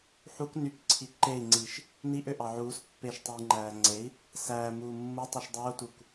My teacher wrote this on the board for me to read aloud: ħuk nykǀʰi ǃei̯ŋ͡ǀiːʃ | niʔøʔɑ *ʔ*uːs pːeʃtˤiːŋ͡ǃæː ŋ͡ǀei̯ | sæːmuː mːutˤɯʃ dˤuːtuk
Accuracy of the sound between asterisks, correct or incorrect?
incorrect